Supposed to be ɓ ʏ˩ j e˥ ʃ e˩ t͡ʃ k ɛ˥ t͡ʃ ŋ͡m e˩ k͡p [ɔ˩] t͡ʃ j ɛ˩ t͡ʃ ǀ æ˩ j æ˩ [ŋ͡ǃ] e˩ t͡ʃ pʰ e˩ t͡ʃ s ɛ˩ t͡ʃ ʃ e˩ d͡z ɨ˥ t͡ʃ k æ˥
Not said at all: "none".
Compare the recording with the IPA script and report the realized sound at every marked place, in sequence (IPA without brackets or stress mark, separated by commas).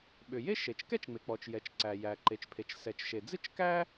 ɔ˩, ǃ